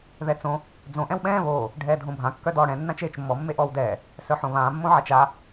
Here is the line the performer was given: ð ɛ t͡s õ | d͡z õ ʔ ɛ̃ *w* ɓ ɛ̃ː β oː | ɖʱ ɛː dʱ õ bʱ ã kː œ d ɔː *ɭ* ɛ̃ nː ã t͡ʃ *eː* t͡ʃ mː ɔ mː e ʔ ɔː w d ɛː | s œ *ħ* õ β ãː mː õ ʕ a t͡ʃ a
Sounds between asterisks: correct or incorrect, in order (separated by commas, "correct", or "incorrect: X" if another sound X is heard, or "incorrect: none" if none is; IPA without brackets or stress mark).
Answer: correct, incorrect: ɽ, correct, correct